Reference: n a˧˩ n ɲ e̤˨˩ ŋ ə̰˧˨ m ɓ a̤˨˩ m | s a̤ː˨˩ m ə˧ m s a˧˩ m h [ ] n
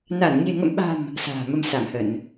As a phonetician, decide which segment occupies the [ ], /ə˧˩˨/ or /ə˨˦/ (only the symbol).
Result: ə˧˩˨